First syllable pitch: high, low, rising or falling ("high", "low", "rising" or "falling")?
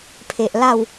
low